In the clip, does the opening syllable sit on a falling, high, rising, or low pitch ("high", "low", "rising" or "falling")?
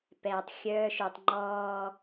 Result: low